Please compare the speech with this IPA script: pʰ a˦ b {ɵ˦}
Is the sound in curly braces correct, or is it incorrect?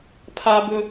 correct